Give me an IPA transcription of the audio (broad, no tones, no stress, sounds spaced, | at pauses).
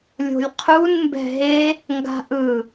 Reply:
lʲ o̤ lʲ qʰ u n m b ɛ̤ ɦ e | ŋ ɡ a̤ ʔ ɯ